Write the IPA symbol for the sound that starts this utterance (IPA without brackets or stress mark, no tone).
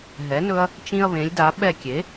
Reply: ɦ